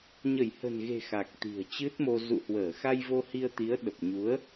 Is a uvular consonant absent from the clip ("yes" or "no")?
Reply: yes